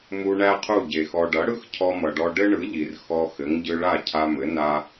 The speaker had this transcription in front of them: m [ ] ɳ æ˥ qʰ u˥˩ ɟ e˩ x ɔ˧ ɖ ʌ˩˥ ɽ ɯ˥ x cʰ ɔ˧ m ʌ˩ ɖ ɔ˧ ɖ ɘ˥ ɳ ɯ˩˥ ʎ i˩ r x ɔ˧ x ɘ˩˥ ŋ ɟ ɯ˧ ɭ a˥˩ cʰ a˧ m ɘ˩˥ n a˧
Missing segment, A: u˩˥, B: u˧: B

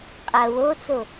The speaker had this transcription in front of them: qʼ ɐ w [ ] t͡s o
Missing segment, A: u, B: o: B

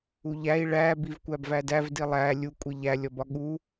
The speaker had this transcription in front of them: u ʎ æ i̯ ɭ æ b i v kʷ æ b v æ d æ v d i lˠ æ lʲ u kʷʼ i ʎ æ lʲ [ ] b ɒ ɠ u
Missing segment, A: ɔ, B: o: A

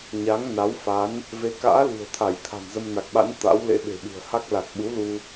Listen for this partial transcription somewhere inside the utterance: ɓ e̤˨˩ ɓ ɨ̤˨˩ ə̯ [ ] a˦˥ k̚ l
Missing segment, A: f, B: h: B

